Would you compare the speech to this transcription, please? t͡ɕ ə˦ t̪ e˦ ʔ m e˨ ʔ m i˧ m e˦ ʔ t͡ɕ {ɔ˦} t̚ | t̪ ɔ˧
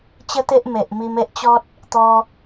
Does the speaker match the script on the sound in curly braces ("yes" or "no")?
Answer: yes